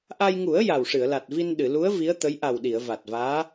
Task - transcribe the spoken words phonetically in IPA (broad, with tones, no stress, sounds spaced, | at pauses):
ʔ a˧ j ŋ u˨˩˦ ə̯ j a˨˩ w ʂ ɨ˨˩˨ ə̯ l a˨˩ t̚ v i˧ n ɗ ɨ˨˩˨ l u˧˥ ə̯ v i˧˥ ə̯ t̪ ə˧˥ j ʔ a˨˩ w ɗ i˨˩˨ ə̯ v a˨˩ t̚ v aː˧˥